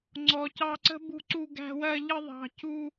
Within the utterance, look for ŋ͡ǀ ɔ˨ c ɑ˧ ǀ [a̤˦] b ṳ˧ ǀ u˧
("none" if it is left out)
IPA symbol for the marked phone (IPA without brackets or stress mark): ə̤˦